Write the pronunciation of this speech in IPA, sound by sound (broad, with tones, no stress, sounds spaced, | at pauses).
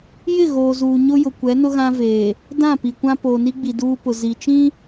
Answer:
j ɪ˦˨ ɣ oː˨ z uː˨ ɲ ʊ˦ j ʊ˨ kʷ ɛ˨˦ n ʊ˦ ɣ ã˦ v eː˨ | d ã˦˨ p i˨ kʷ ã˦ p oː˨ n i˦ ɡ͡b i˨ d uː˦ p ʊ˨ z i˨ t͡ʃ ĩ˦